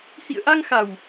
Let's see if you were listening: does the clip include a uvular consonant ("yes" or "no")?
no